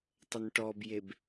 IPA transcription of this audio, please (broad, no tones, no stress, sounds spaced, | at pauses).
tˤ ə n ʈ ɔ b j e b